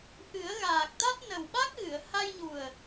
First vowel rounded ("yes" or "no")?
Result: no